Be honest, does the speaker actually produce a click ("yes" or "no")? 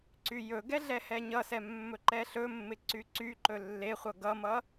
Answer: yes